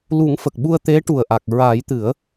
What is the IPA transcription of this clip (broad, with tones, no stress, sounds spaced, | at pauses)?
l u˨˩˦ ŋ f ə˨˩ k̚ ɓ u˧ ə̯ t̪ e˧˥ ʈ u˨˩ ə̯ ʔ a˨˩ k̚ ɹ a˨˩˦ j t̪ ɨ˨˩˦ ə̯